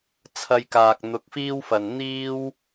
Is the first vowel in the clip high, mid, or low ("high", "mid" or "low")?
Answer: low